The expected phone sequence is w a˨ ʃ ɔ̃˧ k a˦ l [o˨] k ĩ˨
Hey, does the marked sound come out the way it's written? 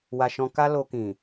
no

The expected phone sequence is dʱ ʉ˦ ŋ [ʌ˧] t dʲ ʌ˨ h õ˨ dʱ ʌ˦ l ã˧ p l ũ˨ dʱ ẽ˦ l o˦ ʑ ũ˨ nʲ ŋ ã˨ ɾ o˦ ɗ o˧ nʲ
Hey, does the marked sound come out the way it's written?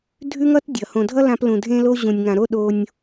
no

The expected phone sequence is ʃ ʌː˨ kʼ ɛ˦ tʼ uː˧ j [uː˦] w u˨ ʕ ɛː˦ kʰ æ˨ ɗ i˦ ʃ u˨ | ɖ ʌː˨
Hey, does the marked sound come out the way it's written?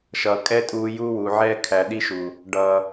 yes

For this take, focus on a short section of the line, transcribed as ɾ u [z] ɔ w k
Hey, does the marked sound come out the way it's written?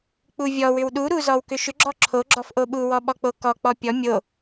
yes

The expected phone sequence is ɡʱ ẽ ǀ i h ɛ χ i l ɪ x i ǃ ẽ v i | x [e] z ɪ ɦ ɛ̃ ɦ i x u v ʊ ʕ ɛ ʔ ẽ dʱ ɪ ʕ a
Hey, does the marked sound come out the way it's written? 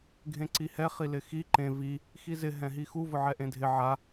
no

